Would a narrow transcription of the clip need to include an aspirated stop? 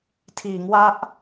yes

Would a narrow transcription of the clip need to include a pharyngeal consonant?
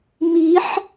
yes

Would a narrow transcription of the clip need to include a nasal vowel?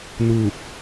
no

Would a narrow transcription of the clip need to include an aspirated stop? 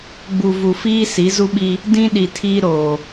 yes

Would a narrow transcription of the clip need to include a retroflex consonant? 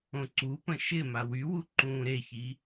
no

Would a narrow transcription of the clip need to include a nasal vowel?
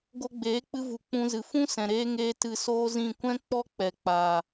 yes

